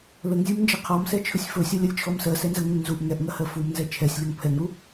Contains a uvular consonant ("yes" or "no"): yes